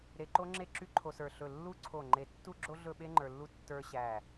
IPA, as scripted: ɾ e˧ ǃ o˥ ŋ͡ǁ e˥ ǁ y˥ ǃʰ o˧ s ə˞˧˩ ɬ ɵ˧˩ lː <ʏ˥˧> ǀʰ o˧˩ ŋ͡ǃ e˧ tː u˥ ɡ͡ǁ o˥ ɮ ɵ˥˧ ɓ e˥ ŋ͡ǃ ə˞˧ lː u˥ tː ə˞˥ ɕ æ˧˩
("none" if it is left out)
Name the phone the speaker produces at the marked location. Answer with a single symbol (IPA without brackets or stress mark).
u˥˧